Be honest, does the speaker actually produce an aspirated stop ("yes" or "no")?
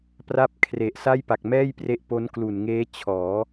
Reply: yes